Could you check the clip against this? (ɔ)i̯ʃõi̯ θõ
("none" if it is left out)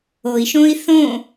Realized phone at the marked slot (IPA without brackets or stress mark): o